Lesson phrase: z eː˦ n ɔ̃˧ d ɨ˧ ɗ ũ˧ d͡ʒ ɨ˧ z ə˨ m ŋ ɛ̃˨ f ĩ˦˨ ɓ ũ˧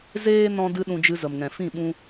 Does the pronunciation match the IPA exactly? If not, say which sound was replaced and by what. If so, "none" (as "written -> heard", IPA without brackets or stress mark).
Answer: none